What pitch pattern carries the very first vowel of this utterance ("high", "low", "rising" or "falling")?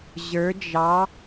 rising